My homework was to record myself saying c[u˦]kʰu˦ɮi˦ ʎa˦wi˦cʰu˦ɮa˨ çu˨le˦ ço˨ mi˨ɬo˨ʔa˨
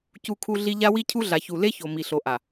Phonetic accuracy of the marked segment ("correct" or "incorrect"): correct